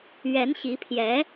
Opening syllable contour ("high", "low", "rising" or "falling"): rising